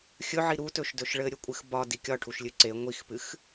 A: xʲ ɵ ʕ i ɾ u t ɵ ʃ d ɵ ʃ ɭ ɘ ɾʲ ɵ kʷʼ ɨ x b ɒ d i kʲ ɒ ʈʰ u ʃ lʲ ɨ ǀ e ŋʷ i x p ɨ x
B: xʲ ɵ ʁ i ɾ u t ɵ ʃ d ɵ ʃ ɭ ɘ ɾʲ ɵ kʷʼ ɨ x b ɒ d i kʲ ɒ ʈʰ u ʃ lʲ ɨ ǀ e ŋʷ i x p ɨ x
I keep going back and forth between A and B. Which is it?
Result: A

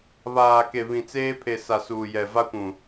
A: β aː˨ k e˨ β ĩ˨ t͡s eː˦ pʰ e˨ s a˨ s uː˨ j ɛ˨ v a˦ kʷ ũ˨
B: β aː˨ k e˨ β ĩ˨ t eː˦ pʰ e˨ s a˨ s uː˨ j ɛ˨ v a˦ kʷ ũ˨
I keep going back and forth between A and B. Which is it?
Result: A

